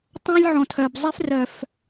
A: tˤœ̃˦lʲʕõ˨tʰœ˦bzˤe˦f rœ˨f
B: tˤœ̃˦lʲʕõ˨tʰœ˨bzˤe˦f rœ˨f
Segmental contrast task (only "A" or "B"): B